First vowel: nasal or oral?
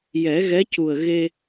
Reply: oral